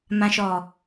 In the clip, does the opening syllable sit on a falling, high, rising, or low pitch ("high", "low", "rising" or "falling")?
low